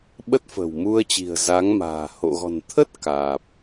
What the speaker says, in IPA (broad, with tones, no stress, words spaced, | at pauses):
ɓə˦˥t̚fə̤˨˩wmu˧ə̯t͡ɕi̤˨˩ə̯ za˨˦ŋma̤ː˨˩ ho̰˧˨ɣɔ̤˨˩n t̪ʰə˦˥t̚ kaː˨˩p̚